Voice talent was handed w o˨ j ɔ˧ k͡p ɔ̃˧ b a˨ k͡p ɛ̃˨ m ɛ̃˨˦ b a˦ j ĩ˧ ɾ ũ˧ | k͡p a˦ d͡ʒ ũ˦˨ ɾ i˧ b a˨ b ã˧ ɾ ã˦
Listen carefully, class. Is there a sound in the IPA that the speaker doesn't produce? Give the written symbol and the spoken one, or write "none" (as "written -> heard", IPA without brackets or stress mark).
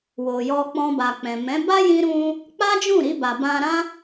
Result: none